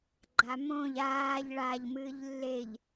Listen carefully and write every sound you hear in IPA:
ɡ͡ǃ a m õ ʎ aː ʎ ɭ a ʎ m ɨː ʎ lː e ʎ

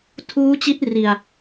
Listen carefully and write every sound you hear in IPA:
tʰ uː˦˥ t͡ɕ i˦˥ t̚ r i˧ a̯

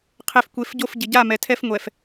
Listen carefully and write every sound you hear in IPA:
qʰ e˨ f kʷ e˨ f ɟ o˦˨ f ɟ ɪ˨ ɟ a˦˨ m ɛ˨ tʰ ɛ˦ f ŋʷ ɛ˨ f

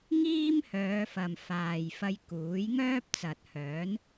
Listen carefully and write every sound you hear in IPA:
ŋ iː˥ m h œː˨˧ f ɐ˨ m f aː˨ j f ɐ˧ j k uː˨˥ j ŋ œː˥ p̚ t͡s ɐ˨ t̚ h œː˨˥ n

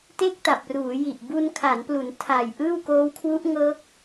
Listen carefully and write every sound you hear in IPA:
t e˥˩ k̚ t a˨˩ p̚ r uː˩˦ j i˨˩ ʔ b u˧ n kʰ a˩˦ n p l u˩˦ n tʰ aː˨˩ j ʔ ɯː˥˩ w k oː˦˥ w kʰ w u˦˥ ʔ ŋ ɤː˦˥ k̚

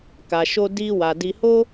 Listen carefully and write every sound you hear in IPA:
k a˨ ʃ o˧ d i˧ w a˨ d i˧ h o˦

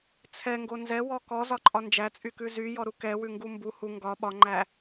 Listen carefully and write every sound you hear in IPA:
t͡sʰ ɛ ŋ ɡ o n z ɛ w ɔ k ɔ z ɒ ǃʼ ɒ n d͡ʒ æ t͡sʼ y k ʉ z y j ɔ ɾ u k ɛ w ʉ ŋ ɡ u m b u h u ŋ ɡ ɒ ɓ ɒ ŋ͡ǃ æ

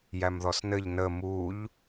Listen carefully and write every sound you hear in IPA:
j æ m ð ɔ s n ɘ ʎ n ə m u ʎ

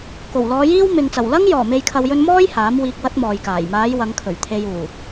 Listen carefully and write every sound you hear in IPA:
k o˨˩ w l ɔː˨˧ j iː˥ w m ɪ˨ ŋ t͡s ɐ˨˩ w l ɐ˥ ŋ j ɔː˨˩ m e˨ j kʰ ɐ˨ w j ɵ˧ n m ɔː˥ j h aː˨˥ m w iː˧ k̚ w ɐ˥ t̚ m ɔː˨ j k aː˨˩ j m aː˨˧ j w ɐ˨˧ ŋ kʰ ɵ˨˩ ɥ t̪ʰ e˨ j uː˨˩

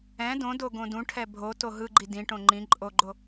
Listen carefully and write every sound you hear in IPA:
ɛ̃ d õ d o ɡ õ d ũ ʈʰ ɛ bʱ o t o ɦ ɯ ɡ͡ǃ i d ĩ ʈ õ ŋ͡ǃ ĩ ǃʼ o ɡ͡ǃ o

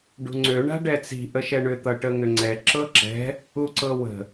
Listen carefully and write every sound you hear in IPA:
ɖ ṳ ŋ͡ǀ ø ɳ a̤ ɖ ɛ t͡s i̤ ʔ ə ʃ ɛ ɳ ʏ t̪ ʌ ʈ ə ŋ ʏ ŋ͡ǀ ɛ ǁ ɤ ǁ ɛ̤ | u ǀ ɤ w ə̤

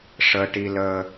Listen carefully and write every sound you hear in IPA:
ʂ əː˧ ʈ i˧ l əː˧

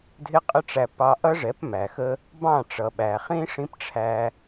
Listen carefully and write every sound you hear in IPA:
dʱ ɪ˦ qʼ ə˦ ʈ͡ʂ æ˧ p ɑ˧ ʔ ʌ˦ ʐ ɛ˨˦ p m æ˨ x ə˦ | b ɑ̃˦˨ ʈ͡ʂ ʌ˨ ɓ æ˨ χ ĩ˦ ʂ ĩ˦ p ʈ͡ʂʰ æ˧

